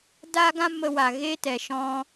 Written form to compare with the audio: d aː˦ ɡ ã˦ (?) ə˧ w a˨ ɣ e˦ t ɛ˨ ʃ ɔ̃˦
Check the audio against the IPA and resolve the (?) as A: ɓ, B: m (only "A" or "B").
B